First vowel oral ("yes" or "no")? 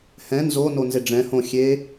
no